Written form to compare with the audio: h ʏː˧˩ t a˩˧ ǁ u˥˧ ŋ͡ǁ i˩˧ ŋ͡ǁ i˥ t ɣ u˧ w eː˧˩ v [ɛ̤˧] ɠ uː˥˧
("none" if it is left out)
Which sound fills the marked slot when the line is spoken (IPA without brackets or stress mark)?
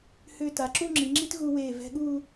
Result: ɛ̤˧